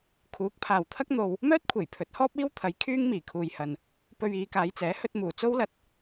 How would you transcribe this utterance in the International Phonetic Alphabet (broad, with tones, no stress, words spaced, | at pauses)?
kʰuː˨˥k̚pʰaː˨wt̪ʰɐ˥k̚ n̪o˧w | mœː˥t̚kʷʰe˨˩j pʰɵ˨˥t̚hɔː˥p̚iː˥wt̪ʰɐ˨˥j kʰyː˥ŋmiː˨˩kʰuː˨jhɐ˨n | pɵ˧ɥiː˨˧kaː˨˧jt͡sɛː˨˥ hɵ˧t̚muː˨˩t͡so˥wlɐ˧t̚